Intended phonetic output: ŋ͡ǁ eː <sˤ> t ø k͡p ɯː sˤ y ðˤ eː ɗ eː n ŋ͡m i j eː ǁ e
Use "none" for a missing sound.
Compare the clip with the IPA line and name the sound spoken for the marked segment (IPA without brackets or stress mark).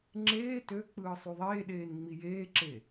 none